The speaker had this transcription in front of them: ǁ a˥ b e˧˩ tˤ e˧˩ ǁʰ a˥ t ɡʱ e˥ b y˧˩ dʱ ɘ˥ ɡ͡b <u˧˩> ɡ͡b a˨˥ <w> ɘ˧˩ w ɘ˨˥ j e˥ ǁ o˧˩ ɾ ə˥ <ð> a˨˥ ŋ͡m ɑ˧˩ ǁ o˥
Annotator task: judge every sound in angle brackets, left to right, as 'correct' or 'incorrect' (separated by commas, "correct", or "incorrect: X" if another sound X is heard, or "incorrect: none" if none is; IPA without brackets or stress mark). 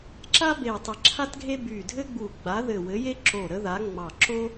correct, incorrect: ð, correct